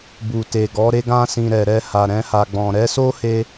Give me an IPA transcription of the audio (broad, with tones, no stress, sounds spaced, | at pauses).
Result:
b u˨ t e˨ ɡ ɔ˨˦ ɾ e˧ ɡ ã˧ s ĩ˨ ɾ ɛ˨ ɾ ɛ˧ h a˨ ɾ ɛ̃˧ h a˨ ɡ͡b ɔ̃˨ ɾ ɛ˨˦ s o˦ h e˧